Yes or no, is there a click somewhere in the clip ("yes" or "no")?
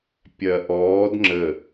yes